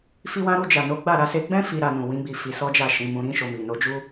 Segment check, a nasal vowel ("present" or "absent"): present